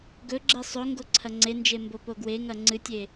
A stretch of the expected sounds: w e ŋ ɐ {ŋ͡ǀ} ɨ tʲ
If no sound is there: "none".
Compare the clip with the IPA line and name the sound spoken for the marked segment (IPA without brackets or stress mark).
ŋ͡ǀ